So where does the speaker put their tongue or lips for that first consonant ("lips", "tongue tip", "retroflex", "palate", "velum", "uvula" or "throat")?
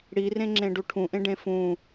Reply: retroflex